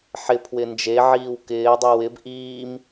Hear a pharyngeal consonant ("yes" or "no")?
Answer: yes